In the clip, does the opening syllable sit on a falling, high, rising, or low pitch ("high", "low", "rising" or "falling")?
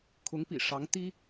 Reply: rising